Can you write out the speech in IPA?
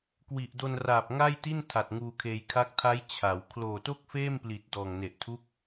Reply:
kwi˨˩ʔdo˧nraː˨˩p̚ ŋa˥˩jti˥˩n tʰa˨˩t̚ ŋuː˧kʰeː˧j kʰa˦˥k̚tʰa˦˥j t͡ɕʰa˩˦w kʰloː˨˩to˥˩k̚feː˥˩mpli˨˩t̚ dɔː˨˩ŋne˨˩ʔtʰu˦˥k̚

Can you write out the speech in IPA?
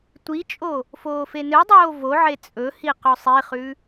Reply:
tʷit͡ʃʼo | foːfenɨdˤoː voʕe t͡sʼɵhi qɵsˤiχʉ

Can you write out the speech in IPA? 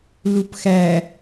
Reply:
lupxæ

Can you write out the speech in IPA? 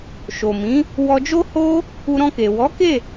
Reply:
ʃo˨mĩ˨˦ | wɔ˧ d͡ʒo˦ ho˦ | u˧ɾɔ̃˧ke˨ wɔ˨˦ke˦˨

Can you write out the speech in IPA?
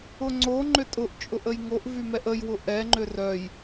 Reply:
ʊŋ͡ǀo ŋ͡ǃʏtʼʊʔt͡ʃʼʊʔ əjŋoʔ vymɛʔəjwʊ ʔɛŋ͡ǃʏ rœj

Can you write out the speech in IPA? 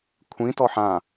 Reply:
kʷʰĩtɔ ħã

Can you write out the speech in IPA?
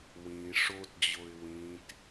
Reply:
wĩ ʂotd͡ʑoɪ̯ wĩt

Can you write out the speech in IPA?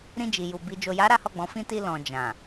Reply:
ɾĩ˧d͡ʒi˨ju˨ bi˨ d͡ʒo˨ja˨˦ ɾa˦hɔ˦˨ɡ͡bɔ̃˨˦fĩ˦ ti˧ lɔ̃˨d͡ʒã˨

